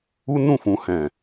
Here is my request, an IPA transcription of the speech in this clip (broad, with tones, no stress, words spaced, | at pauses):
u˦nũ˦˨fũ˨ hɛ̃˨